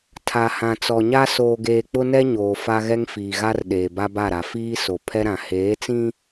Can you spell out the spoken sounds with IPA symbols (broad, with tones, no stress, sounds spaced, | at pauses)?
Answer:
tʰ a˨ h ã˨ t͡s ɔ˨ ɲ a˦ s oː˨ ɡ eː˨ k͡p ʊ˦ n ɛ˦ ɲ oː˨ f a˦ ɣ ɛ˦ ŋ f iː˨ ɣ a˦ r ɗ eː˨ b a˦ b a˦˨ ɾ a˨ f iː˦ s o˨ pʰ ɛ˦ ɾ ã˨ h eː˨˦ t͡s ĩ˦